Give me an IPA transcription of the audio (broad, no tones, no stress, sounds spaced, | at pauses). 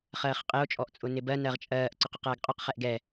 χ ɜː χ qʼ ɪ o̯ t͡ʃʼ ɔ ʔ t͡sʼ ʊ n ɪ b ɜ n ɜ ʁ t͡ʃʼ ɜː ʔ ǀ ʊ q ʊ q ɜː ɡ qʼ ʊ q χ ɛ ʔ ɡ ɛ